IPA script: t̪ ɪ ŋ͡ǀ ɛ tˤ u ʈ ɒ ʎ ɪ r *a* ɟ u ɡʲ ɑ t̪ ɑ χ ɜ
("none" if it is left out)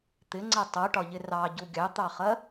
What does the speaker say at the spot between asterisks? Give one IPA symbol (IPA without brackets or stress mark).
ɑ